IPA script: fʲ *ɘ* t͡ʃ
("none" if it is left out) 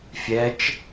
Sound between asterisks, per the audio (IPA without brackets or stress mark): ɛ